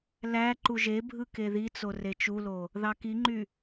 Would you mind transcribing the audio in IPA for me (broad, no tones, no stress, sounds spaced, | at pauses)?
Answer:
l æ ǃ u ʒ e bʱ ɯ k e ð i t͡s o r e t͡ʃ u l o | ð ɑ k i ŋ͡ǃ y